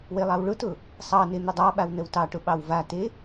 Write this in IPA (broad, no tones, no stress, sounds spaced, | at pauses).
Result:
w e lˠ ɑ w ɭ ʊ t ʊ | sˤ ɑ n e n̪ ʊ dˤ ɑ ɓ a w n ə w t ɑ ʈ ʊ ɓ ɑ w v a t e